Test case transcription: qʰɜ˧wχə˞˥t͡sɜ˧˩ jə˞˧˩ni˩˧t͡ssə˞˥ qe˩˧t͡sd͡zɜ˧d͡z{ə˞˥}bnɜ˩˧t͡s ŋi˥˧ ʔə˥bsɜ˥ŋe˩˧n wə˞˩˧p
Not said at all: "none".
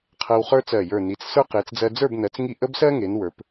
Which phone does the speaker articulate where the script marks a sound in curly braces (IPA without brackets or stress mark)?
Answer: ə˞˥˧